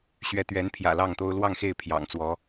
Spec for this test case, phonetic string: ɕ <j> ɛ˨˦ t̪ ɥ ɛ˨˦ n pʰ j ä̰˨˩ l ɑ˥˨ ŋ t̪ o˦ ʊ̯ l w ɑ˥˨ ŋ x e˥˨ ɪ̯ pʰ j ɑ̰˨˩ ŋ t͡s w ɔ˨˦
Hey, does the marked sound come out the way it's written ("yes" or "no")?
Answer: no